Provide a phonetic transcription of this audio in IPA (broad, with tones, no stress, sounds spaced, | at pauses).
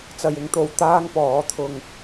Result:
t͡s ɐ˨ j ɪ˧ ŋ t̪ o˨ w t̪ aː˥ ŋ p ɔː˨˥ t̪ʰ ʊ˧ ŋ